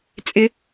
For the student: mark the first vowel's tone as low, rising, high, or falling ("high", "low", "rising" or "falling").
high